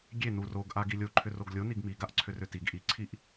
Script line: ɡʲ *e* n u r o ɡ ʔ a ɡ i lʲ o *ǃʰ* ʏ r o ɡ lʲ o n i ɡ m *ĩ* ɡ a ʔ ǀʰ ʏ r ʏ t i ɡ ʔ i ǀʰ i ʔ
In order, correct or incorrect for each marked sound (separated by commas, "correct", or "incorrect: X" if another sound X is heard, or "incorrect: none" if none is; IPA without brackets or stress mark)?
correct, correct, incorrect: i